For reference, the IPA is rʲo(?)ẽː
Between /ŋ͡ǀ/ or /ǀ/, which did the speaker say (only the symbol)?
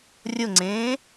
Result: ŋ͡ǀ